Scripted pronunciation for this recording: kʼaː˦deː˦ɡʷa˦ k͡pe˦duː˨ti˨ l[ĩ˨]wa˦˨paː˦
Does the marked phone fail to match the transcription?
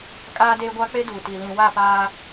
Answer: no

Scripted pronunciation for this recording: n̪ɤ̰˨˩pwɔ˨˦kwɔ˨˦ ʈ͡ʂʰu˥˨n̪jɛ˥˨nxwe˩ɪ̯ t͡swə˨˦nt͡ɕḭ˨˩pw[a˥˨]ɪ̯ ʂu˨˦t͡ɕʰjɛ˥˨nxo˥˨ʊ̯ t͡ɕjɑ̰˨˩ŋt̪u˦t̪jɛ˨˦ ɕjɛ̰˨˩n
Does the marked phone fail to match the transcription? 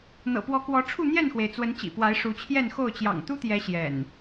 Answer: yes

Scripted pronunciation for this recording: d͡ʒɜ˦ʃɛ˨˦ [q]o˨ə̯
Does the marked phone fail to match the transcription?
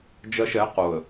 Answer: no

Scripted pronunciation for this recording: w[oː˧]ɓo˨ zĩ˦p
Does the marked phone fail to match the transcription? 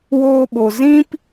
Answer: no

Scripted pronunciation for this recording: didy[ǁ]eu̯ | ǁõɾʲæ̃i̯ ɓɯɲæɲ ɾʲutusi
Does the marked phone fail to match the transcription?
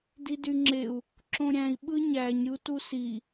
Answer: yes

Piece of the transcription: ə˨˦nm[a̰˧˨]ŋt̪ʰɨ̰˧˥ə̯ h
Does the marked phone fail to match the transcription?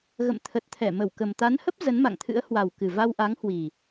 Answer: no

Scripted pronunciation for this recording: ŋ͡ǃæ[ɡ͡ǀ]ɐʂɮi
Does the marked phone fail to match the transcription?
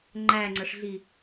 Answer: yes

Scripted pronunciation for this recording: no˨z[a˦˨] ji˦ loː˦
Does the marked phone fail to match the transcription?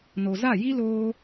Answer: no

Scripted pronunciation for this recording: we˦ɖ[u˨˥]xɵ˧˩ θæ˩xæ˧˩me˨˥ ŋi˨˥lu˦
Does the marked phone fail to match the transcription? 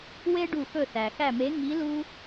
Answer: yes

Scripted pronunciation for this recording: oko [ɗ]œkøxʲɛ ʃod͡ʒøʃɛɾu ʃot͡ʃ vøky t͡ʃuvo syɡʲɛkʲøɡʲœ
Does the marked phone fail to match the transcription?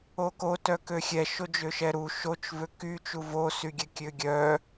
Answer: yes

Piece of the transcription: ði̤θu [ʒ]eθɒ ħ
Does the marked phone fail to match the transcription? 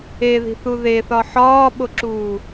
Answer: yes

